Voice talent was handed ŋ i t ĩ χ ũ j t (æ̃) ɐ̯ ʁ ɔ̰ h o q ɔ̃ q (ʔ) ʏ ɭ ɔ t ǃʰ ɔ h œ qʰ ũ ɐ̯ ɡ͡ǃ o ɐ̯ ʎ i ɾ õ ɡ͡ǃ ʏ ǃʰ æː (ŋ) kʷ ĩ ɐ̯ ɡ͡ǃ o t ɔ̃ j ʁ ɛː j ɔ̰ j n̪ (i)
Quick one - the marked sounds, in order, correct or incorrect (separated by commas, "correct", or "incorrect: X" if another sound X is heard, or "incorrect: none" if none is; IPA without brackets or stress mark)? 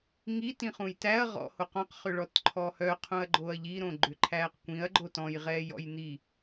incorrect: æ, incorrect: χ, incorrect: q, correct